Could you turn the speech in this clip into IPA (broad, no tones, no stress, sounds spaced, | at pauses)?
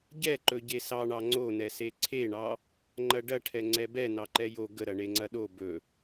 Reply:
ɟ ɛ ǃ ɵ ɟ e s ɑ ɳ ɑ ŋ͡ǀ o n ɛ s e ǀʰ e ɳ ɑ | ŋ͡ǃ ɐ ɖ ɐ ʈʰ ɛ ŋ͡ǀ ɛ b ɛ n ɑ ǃ ɛ j o ɡ ə ɾ ɐ ɳ e ŋ͡ǀ ɐ ɗ o b ɵ